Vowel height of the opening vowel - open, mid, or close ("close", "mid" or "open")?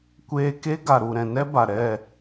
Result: mid